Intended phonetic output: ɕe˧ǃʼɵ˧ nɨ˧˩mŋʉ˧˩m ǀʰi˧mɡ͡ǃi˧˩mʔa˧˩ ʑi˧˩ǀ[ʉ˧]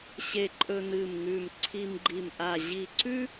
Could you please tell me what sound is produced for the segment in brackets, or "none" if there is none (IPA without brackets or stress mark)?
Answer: ʉ˥